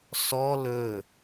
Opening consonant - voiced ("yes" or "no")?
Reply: no